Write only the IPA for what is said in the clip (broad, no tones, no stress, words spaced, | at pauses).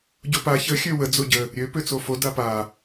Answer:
ɟopa çə xʲøwə d͡zoɟə | ɾʲø pøt͡sofo dapa